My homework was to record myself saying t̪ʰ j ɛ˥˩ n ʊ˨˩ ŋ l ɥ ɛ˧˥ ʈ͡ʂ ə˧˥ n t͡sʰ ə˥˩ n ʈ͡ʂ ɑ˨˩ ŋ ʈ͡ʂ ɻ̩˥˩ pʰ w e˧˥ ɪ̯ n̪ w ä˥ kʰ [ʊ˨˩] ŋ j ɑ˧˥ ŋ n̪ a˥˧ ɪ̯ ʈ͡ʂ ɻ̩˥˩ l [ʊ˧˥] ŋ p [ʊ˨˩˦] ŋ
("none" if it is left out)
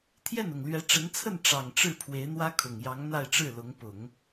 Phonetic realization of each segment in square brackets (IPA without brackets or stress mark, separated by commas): ʊ˨˩, ʊ˧˥, ʊ˨˩˦